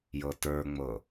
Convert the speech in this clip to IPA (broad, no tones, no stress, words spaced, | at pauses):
jɤtə˞ŋ͡mɤ